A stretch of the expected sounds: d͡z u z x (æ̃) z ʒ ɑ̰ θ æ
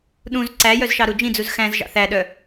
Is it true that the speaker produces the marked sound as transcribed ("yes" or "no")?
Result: yes